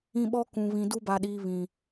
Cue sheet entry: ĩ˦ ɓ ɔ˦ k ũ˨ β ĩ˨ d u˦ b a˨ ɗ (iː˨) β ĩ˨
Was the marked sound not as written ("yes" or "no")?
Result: no